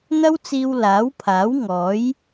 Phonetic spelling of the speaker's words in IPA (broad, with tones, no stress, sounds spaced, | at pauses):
n̪ ɐ˥ w t͡s iː˧ w l aː˨˥ w pʰ aː˨˥ w ŋ ɔː˨˥ j